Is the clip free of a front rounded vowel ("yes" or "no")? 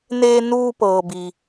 yes